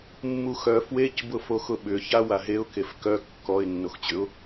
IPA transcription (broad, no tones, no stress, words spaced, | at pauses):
mːuxœ fwec bʊfoxʊɓʏ çawaɦeʊ̯ kefkœ kːɔɪ̯ nːoxt͡ɕʏʊ̯